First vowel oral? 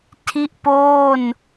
yes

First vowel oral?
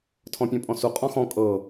no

